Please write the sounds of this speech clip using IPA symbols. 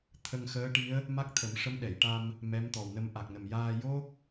t̪ʰ ə˧ ŋ x əː˧˥ ʈ i˧˥ ə̯ | m a˦˥ k̚ t̪ʰ ə˨˩˦ m ʂ ə˧˥ m ɗ ɛ˨˩˨ j ʈ a˧ m | m ɛ˧˥ m t̪ ɔ˨˩ w n ə˧ m ʔ a˨˩ k̚ n ə˨˩ m j aː˧ j o˦˥ k̚

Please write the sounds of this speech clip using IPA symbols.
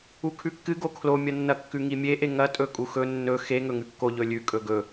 u kʰ ʉ kː ɨ ɡ o kʰ l o mʲ ɐ nː ɐ kː ʉ ŋ i mʲ e ʔ e ŋ ɐ tʼ ɵ kʼ u x ɵ nː ɵ x e ŋ ɵ ŋ ʉ kː o ʎ ɵ lʲ ʉ kʼ ɵ ɡ ɵ

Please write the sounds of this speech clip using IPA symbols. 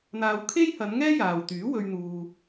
n̪ aː˨ w kʰ e˥ j h ɐ˨˧ n ŋ ɛː˥ j aː˨ w t̪ yː˨˥ w ɵ˧ ɥ n̪ uː˨

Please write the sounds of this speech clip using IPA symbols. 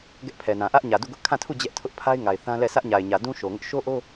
ɡ ɛ˦ ʔ pʰ ɛ˨ n ã˨ ʔ ä˦ ʔ ɲ ä˨ d u˦˨ ɡ ʊ˦ ʔ kʰ ã˦˨ tʰ u˦˨ d͡ʑ ɛ˦ ʔ tʰ ʊ˦ ʔ pʰ a˦ ɪ̯ ŋ a˨ ɪ̯ θ ã˦ l ɛ˦˨ sʰ ä˦ ʔ ɲ a˨ ɪ̯ ɲ ä˨ d ũ˦ ʃ o˨ ŋ ʊ˦ ʔ ʃ o˦ ʔ o˦

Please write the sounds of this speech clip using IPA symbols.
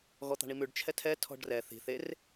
ɣ ɔ t̪ ɑ̤ ɳ i m ʉ ɖ t͡ʃʰ ɛ tʰ ɛ tʰ ɔ̤ ɖ r ɛ θ i̤ θ e r

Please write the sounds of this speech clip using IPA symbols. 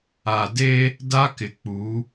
a˨ d e˦ | d a˦ k ɪ˨ k͡p u˨˦

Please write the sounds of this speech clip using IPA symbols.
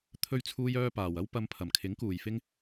t̪ʰ ɵ˧ ɥ t͡sʰ uː˥ j œː˥ p aː˨ w ɐ˥ w p ɐ˧ m pʰ ɐ˨˩ m kʰ ɪ˨˥ ŋ k uː˨ j f ɪ˥ ŋ

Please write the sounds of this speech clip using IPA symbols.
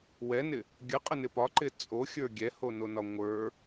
w ɛ n ɪ | ɡʲ ə qʼ ə n ɪ p ɒ ǃ ɪ t͡sʼ o xʲ ə˞ ɡʲ ɛ h o n o n ɒ ŋʷ ə˞

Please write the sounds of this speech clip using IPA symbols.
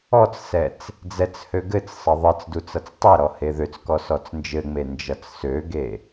ɔ t͡s s ɛ t͡s | d͡z ɛ t͡s h ø ɡ ɘ t͡s sˤ ɘ ðˤ ɘ t͡s d u t͡s ʌ t͡s tˤ e ɾ ɔ h e ð ø t͡s k ɔ s ɔ t͡s n d͡ʒ ɘ ŋ͡m e n d͡ʒ ʌ t͡s s ø ɡ e

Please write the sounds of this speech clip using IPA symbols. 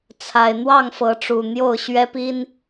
t͡sʰ a˨˩ ɪ̯ n̪ w ɑ˥˨ ŋ f ɤ˨˦ ʈ͡ʂ u˨˩ n̪ j o˥˨ ʊ̯ ɕ ɥ ɛ˦ p i˦ n

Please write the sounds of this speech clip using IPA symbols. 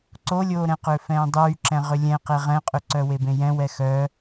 ǀ o lʲ oː ɾ ɛ̃ q ʏː f ɛ̃ː dˤ yː ǁ ɛ̃ ʁ ʏ lʲ ɛ̃ q e ʁ ɛ̃ qʼ ʏ ǀ œ w e b ẽ j ɛ̃ w ɛ x œ

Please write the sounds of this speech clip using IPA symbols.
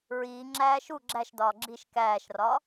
ɹ iː ŋ͡ǁ æː ʃ u ɡ͡ǁ æ ʃ d ɒː ɡ͡ǁ i ʃ k æː ʃ r ɒ

